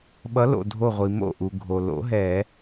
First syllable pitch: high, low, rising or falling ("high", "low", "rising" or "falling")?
rising